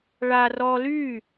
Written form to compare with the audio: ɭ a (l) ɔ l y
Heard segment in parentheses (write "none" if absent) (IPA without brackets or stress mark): r